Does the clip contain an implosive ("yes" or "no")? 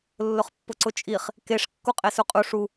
no